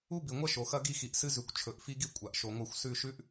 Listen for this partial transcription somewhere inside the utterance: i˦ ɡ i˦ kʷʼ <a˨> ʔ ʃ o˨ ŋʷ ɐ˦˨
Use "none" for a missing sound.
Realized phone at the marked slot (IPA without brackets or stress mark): a˨